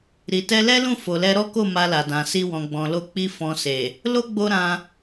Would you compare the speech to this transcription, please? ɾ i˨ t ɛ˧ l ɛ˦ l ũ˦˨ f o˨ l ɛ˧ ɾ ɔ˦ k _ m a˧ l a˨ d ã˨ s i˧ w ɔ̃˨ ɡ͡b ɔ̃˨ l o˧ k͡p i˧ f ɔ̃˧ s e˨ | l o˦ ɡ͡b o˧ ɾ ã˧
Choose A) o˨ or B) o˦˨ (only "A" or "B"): B